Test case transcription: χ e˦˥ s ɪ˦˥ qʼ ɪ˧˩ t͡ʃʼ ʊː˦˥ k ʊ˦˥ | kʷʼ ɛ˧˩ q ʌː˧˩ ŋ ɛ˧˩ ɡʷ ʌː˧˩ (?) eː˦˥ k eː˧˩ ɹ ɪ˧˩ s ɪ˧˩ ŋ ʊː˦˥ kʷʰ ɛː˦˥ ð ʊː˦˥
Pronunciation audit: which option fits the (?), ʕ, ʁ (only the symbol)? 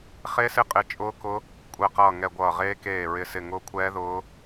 ʁ